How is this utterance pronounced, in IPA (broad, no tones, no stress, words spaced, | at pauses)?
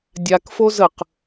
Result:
dʲakfo zəq